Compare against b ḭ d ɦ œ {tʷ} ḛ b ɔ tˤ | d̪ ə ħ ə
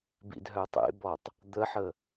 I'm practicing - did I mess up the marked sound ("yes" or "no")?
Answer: yes